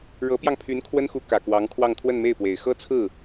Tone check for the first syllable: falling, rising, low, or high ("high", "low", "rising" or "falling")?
rising